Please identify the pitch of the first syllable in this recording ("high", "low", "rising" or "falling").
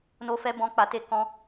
high